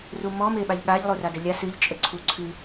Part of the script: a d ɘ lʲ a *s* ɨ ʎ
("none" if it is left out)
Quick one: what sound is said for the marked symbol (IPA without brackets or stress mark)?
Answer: s